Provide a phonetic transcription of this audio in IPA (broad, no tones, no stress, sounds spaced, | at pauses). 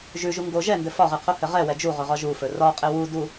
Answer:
ʒ ʉ ʒ u ŋ ɡ o ʒ ɛ n d ɘ f ɒ ʁ ɘ qʰ o h ɘ ʁ ɛ w ɛ d͡ʒ u ʁ ɵ ʁ ɒ ʒ u f ɵ r ɒ qʼ ɘ w u d u